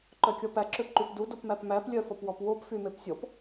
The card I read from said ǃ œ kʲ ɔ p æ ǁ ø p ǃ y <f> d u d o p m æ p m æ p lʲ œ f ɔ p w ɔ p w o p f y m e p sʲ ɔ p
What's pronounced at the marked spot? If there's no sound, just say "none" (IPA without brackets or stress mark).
p